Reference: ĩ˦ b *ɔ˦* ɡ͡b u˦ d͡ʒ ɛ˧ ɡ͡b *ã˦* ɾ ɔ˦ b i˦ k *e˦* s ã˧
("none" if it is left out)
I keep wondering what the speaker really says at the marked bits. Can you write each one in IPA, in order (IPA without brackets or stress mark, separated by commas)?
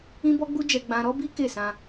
ɔ˦, ã˦, e˦˨